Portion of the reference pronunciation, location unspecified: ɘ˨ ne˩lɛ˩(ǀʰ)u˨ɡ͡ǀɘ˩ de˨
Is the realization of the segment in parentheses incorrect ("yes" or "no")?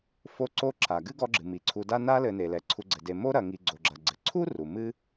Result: no